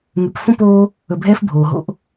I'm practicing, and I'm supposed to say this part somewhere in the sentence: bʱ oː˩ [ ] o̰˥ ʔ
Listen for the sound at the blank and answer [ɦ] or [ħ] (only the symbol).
ɦ